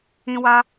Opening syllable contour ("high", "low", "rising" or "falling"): high